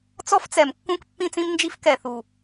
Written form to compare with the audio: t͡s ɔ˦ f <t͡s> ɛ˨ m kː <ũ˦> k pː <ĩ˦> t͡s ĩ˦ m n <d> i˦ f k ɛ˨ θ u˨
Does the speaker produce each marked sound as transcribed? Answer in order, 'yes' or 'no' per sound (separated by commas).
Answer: yes, yes, yes, no